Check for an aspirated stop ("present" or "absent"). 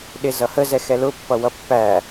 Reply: absent